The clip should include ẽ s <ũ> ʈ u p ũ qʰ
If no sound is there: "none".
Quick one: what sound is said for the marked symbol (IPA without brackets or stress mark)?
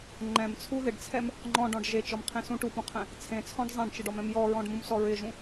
ũ